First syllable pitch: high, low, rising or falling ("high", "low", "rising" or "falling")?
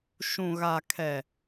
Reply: low